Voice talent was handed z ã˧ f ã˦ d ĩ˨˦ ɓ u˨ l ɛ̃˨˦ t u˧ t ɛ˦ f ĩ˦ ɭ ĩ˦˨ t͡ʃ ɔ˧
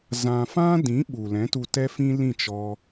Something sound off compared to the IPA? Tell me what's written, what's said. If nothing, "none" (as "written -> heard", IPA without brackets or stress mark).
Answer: ɭ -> l